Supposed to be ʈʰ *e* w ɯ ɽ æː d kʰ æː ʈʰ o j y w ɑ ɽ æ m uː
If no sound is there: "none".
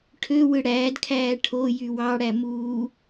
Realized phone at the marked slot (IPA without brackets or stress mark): ø